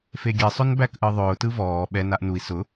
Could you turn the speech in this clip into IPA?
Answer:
f e ɡʲ e sˤ ʊ n b æ k ʔ ɯ ðˤ ʊː t ɯ v ɔː ɓ ɛ n a ʔ n u i̯ s ʊ

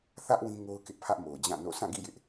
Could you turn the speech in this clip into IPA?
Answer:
θ ä˦ ʔ w ĩ˦ ŋ o˦ ʊ̯ k ɪ˦ ʔ pʰ ä˦ ʔ m o˨ ʊ̯ d͡ʑ ã˦˨ n o̰˦˨ sʰ ã˦˨ ɡ ḭ˦˨ j ɪ˦ ʔ

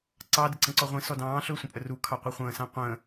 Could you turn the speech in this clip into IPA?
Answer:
ǀ ɑ d ə ǀ ə̃ ǀ ɔ ʁʷ ĩ s ɔ d ɑ̃ː ɬ ɵː sʷ ə̃ pʼ ə r u kʰ ɑ qʷ i χʷ ə̃ː s ã qʷ ə̃ː

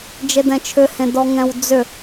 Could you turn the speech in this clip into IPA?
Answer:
d͡ʒ e d ɛ̃ t͡ʃʰ ʏ h ẽ d ɔ ŋ ɛ̃ w d͡z ʏ

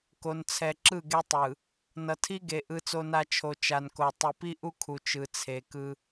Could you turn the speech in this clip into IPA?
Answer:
k o˨ n t͡sʰ ɛ˨ ǁ ɯ˦˨ ɡ e˦ tˤ ɯ˨ | n ʌ˨ tʰ i˦ ɡ e˨ ʔ ɯ˦ t͡s o˦ n a˦ t͡ʃʰ o˨ t͡ʃ a˨ n k o˨ tˤ i˨ p i˦ ʔ u˦ kʰ u˨ t͡ʃ ɯ˨ t͡sʰ e˨ k ɯ˦

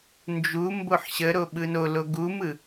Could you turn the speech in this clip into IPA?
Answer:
n d͡ʒ u m b o ħ ɕ ə ɾ o ɓ ɯ n o l o ɡ u m ɯ

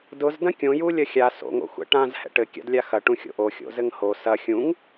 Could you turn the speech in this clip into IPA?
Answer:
d ʊ z d ɐ̃ kʲ õ j u lʲ ɐ xʲ a s o̰ ŋ o̰ xʷ ɛ̰ ʈ ã z h ɛ̰ ʈ ɘ kʲ a̰ d lʲ a x ɐ ʈ ũ xʲ o̰ ʔ o xʲ o̰ z ɘ ŋ h o s ɐ xʲ ũ ŋ

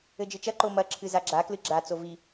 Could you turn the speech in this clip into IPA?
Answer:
ɘ d͡ʒ ɨ t͡ʃ ɐ ǃ o m ɐ ǁʰ ɨ z a ɡ͡ǁ a k l ɨ ɡ͡ǁ a t͡s o v i

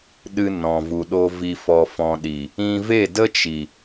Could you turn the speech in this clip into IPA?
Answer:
ɗ ɨ˧ n ɔ̃˨ v u˨ ɗ o˧ v i˧ f ɔ˧ f ɔ̃˧ ɗ i˨ | ĩ˧ v e˦˨ d ə˦ t͡ʃ i˨

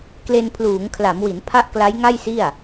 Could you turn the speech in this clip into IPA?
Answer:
k l e˧ n pʰ l uː˩˦ ŋ kʰ l a˩˦ m w i˩˦ n pʰ a˦˥ ʔ k l a˦˥ j ŋ a˥˩ j s i˥˩ a̯

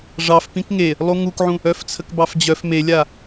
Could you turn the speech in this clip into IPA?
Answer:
ʐ ɑ f p ĩ k ŋ e | lˠ u ŋ u k ʕ ũ | œ f t͡sʰ ə k b ɑ f d͡ʑ œ f m e lʲ a

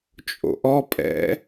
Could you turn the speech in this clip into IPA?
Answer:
t͡ʃʼ o̰ ʔ ɔ pʼ ɛ̰

